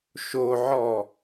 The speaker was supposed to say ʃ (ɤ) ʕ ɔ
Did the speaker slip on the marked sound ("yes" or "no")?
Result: yes